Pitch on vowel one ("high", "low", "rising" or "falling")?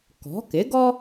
rising